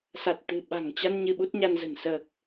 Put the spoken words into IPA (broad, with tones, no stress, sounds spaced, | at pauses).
s a˨˩ t̚ t̪ ɨ̤˨˩ ɓ a̤˨˩ ŋ t͡ɕ a˧ n ɲ ɨ˧ ɓ u˦˥ t̚ ɲ a˧ n z ə̤˨˩ n s əː˨˩ k̚